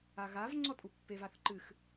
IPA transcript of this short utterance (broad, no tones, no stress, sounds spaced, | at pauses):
a ɣ a v ŋ͡ǀ ɔ tʼ u pː e v a θ ǃ ɨ x